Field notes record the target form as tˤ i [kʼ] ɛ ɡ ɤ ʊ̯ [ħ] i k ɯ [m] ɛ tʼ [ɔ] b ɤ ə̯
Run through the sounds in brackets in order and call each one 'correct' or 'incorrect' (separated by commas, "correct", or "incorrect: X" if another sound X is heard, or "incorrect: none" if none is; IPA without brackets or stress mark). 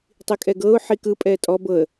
correct, correct, incorrect: pʼ, correct